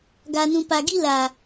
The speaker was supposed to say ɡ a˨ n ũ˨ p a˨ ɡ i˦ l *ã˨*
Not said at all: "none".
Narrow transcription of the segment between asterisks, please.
a˨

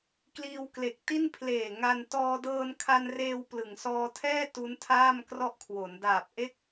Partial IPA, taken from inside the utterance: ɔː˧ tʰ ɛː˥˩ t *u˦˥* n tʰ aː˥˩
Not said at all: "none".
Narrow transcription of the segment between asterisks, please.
u˦˥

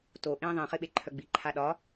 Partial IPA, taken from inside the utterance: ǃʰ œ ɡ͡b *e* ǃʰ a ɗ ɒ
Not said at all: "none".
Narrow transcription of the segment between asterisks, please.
i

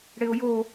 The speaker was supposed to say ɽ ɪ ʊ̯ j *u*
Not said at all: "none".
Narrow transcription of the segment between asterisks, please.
o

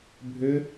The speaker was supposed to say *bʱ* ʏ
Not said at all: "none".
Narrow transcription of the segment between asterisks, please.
bʱ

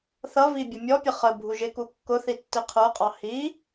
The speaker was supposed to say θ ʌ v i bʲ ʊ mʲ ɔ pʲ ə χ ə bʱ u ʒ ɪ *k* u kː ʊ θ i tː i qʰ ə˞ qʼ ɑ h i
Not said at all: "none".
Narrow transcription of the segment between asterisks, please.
k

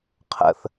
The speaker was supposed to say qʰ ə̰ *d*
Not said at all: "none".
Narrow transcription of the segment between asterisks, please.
θ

